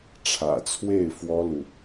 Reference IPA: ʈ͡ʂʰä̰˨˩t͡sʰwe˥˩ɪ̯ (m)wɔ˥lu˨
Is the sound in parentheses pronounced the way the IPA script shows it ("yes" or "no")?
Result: no